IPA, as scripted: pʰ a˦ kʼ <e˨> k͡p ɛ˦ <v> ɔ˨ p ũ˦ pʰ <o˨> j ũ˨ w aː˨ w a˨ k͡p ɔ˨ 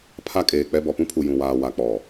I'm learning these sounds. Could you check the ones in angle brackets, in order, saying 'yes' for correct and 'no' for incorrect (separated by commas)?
no, no, no